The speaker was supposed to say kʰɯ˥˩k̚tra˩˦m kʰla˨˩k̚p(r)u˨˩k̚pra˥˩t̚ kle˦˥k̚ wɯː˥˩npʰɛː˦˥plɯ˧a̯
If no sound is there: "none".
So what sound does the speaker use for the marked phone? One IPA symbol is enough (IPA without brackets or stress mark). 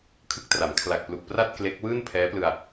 l